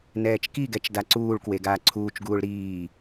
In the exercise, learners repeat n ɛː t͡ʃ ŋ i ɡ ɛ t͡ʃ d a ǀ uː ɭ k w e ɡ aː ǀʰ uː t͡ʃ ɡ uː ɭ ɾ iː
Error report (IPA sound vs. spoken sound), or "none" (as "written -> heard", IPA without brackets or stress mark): ŋ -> k